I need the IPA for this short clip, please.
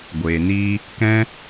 ɡʷ eː˨ n iː˦ | k ɛ̃˦

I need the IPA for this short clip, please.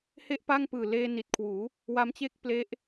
h e˦˥ ʔ p a˥˩ ŋ p ɯː˨˩ l eː˧ n i˨˩ t̚ kʰ w uː˩˦ | w a˦˥ m t͡ɕ e˥˩ k̚ p l e˦˥ ʔ

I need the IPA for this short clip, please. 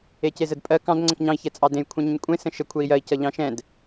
e c e z ə d pʼ ɜ k ɑ̃ d ŋ͡ǀ ə̃ k ɲ ɑ̃ i̯ ç ɛ t͡sʼ ɑ d ẽ j kʷʰ ɛ̃ ɲ ə̃ ɲ kʷʼ ẽ s ə̃ ʃ ə kʷʰ ɛ i̯ j ɜ i̯ c ʌ ʎ ɑ̃ ʃ ɛ̃ d

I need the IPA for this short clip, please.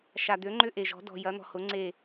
ʃ a˩ d̪ ø˩˧ ŋ͡ǃ ʏ˧ ʔ e˩ ʒ ɔ̤˩˧ d ɔ̤˩ j ɐ˩˧ n̪ ɔ̤˩ h ʊ˩˧ ŋ͡ǀ e˧˩

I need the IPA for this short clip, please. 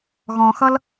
ɣ ɔ̃ x ʌ l

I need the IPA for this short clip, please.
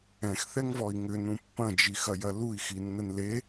ɛ̃ x θ ɛ ŋ v ɔ i̯ ŋ ʏ n ũ pː ɐ̃ d͡ʒ i x ɐ j ɐ l u i̯ x i nː ə n l e

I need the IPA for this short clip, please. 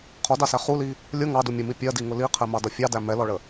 qʰ ɔ d ɑ s æ χ u l i | lʲ ʊ ŋ ɑ d u mʲ ʊ m i pʲ ɜ d i ŋ ʊ l i qʰ ɛ m ɑ d ʌ fʲ ɑ d æ m ɛ l ɔ ɭ ə

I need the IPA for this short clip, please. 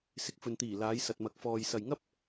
s ɪ˨˥ k̚ f ɵ˨ n t̪ iː˨˩ l aː˨˧ j s ɐ˨ t̚ m ɐ˨˥ k̚ f ɔː˨ j s ɐ˨ j ŋ ɐ˥ p̚

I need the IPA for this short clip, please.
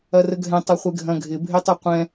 ɐ r ə ɡʱ ɛ̃ tˤ ɐ χʷ e ɡʱ ɐ̃ ɡʱ ɪ bʱ e tˤ ə˞ qʷ ɛ̃

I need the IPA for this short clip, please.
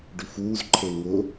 ɖ ʉ f uː z ǃʰ e ŋ ʊ

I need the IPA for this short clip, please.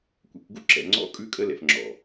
kʷ ɛ̰˨ kʷ ɡ ṵ˦ ǁ ɛ̰˨ ŋ͡ǀ ɔ̰˦ kʼ ʉ˦ kʼ ə˦ l ɛ̰˨ f ŋ͡ǁ ɔ̰˨

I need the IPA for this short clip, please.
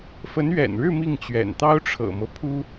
f ə˧˥ n ɥ ɛ̰˨˩ n ɻ ɻ̩˥˧ m i˥˩ ŋ t͡ɕ ɥ ɛ̰˨˩ n t̪ ɑ˥ ʊ̯ ʈ͡ʂʰ ɤ̰˨˩ m ɤ˦ pʰ u˥

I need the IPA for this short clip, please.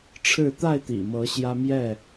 ʈ͡ʂʰ ɻ̩˥˨ t̪ a˥˨ ɪ̯ t̪ ḭ˨˩ m ɤ˨˦ ɕ j ä˦ m j ɛ˥˨

